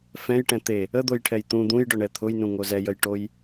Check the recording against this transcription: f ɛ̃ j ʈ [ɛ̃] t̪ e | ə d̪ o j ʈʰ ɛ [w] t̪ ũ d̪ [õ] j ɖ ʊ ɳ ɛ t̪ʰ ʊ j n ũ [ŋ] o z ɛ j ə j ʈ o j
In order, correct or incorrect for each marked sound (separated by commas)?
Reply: correct, incorrect, incorrect, correct